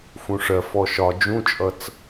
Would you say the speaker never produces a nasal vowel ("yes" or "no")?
no